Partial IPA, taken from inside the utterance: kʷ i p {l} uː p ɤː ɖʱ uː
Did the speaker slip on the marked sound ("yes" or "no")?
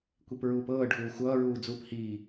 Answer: yes